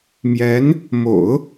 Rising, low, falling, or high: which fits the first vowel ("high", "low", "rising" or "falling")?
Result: rising